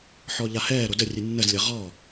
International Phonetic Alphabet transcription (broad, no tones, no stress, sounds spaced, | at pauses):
ħ ɔ ʎ a h ɛː ɾ o d ə rʲ ɨ nː ə z lʲ ɐ ʁ ɔ